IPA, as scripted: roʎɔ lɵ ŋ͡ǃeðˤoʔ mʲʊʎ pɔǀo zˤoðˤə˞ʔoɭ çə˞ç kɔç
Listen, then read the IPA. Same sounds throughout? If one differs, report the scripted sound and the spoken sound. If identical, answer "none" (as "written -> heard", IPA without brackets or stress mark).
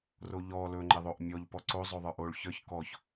ʊ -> ɔ